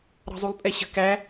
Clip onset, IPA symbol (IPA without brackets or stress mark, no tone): ɾ